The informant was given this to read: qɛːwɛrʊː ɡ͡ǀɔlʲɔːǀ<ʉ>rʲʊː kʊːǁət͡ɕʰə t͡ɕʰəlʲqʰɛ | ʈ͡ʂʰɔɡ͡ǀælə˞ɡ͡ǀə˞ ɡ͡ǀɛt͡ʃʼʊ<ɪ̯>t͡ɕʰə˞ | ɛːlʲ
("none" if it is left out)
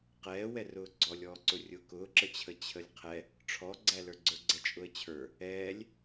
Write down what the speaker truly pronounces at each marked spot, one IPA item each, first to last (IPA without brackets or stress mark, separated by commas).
ʊ, ə̯